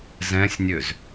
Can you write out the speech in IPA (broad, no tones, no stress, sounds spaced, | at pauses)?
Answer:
z ɛ̃ sʲ nʲ ø z